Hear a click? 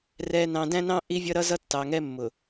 no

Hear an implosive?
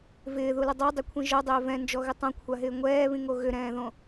no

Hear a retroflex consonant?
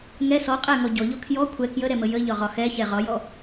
no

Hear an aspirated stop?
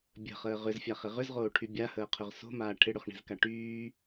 yes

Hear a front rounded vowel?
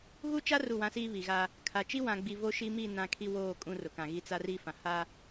no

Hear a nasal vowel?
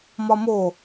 no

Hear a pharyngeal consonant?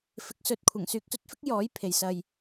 no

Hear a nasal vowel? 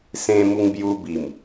yes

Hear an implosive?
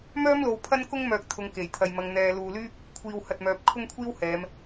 no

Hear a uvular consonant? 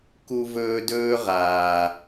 yes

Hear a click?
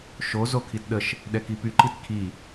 yes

